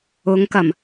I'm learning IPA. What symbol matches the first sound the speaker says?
ʊ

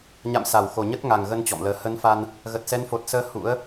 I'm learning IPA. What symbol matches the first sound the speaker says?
ɲ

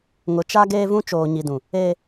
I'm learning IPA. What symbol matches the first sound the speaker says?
ŋ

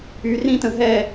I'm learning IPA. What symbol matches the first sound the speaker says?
y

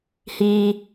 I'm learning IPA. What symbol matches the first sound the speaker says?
h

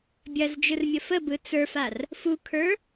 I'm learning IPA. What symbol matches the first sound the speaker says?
bʲ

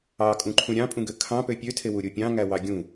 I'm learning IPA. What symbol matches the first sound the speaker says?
ɑ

